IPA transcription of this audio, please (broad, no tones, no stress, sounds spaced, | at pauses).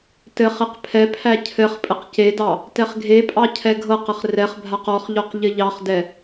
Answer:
t ɘ χ e q pʰ ɛ pʰ æ cʰ ɘ χ pʼ ɘ q c e d ɑ | t ɛ χ ɡʱ e pʼ ɑ cʰ ɛ ɡʱ ɤ q ɘ χ r ɛ χ bʱ a q ɔ χ ʎ ɔ q ʎ ɘ ʎ ɑ χ d ɛ